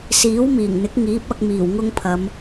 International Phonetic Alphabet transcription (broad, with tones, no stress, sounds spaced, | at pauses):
s iː˨˥ w m iː˨˩ ŋ n̪ ɪ˨˥ k̚ ŋ iː˨˥ p̚ ɐ˧ k̚ m iː˨˩ w ŋ ʊ˥ ŋ pʰ ɐ˨˧ m